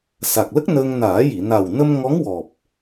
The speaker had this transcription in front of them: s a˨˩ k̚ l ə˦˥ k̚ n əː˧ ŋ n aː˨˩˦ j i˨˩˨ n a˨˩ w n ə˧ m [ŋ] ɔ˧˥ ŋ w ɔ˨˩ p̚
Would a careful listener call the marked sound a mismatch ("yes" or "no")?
no